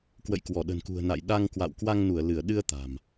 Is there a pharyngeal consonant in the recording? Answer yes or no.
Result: no